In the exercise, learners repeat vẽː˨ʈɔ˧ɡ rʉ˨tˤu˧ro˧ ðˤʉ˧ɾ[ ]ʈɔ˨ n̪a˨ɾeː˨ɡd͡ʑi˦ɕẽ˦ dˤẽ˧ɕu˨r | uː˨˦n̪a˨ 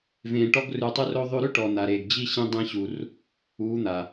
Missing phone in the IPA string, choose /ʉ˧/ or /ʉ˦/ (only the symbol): ʉ˦